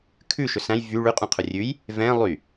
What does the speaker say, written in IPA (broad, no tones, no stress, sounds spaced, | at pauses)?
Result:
kʰ ʉ ʃ ɵ s æ̃ j v y ɭ ʉ qʼ ũ qʰ ɵ rʲ ʉ j | v ɛ̃ lˠ y